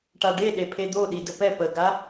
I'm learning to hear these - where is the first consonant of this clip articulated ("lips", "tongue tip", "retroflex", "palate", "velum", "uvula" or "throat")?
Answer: retroflex